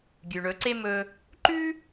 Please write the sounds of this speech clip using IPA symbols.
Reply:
ɡʲ ʉ˩ ɳ ɵ˩˧ ǀ e˧ m ɵ˧ | ǃ ʉ˥

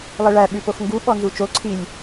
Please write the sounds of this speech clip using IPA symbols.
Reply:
lˠ e ɭ æ ɓ ʉ p o x ŋ ɡ u ɓ ɔ n z u t͡ʃ o ǀʰ i lʲ

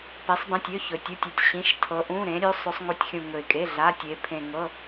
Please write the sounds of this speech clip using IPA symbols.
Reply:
p i˩˧ sˤ b ẽ˩˧˩ tʲ ø˩˧˩ ç ɵ˩ tʲ u˩˧˩ tʲ ɵ˩ tʲ ɕ ĩ˩˧˩ ʃ tʰ ɤ˩˧ ʔ ũ˩˧˩ ɾ ẽ˩˧ ɾʲ ø˩˧ sˤ ø˩˧ sˤ ŋ u˩˧ tʲ xʲ ũ˩ ŋ ɵ˩ ɪ̯ kʼ e˩˧˩ ɮ a˩˧˩ tʲ e˩˧ pʰ ẽ˩ ŋ ɤ˩˧˩

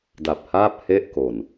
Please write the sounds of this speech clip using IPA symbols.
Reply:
d a˨˩ p̚ h aː˥˩ p̚ h e˥˩ ʔ k o˨˩ n

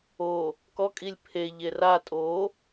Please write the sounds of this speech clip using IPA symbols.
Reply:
o | k ɔ kʼ i lʲ pʰ e ʎ e r a tʼ o

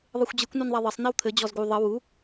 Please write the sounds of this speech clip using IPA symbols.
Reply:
ðˤ ɯ xʷ d͡ʑ ɯ kʷ n u n ðˤ a ðˤ ɘ sˤ n̪ e w t̪ʰ ɘ d͡ʑ ɔ z ɡ u ðˤ ɘ w u

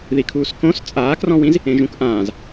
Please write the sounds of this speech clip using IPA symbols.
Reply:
ð i kʰ uː s k õ s t͡sʼ aː k r ɔ̃ w ĩ z | ẽ ʒ ũ k ʔ ãː z

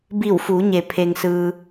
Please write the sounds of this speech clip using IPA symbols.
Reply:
b i˧˩ w f u˩˧ ɲ e˩ pʰ e˩ ŋ s ɯː˩

